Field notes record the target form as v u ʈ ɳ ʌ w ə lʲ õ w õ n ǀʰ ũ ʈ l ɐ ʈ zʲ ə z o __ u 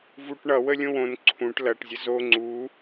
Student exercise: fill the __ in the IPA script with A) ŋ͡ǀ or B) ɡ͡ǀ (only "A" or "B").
A